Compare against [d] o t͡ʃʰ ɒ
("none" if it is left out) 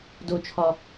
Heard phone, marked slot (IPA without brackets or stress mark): d